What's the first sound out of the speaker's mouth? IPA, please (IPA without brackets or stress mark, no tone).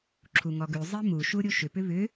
ǁʰ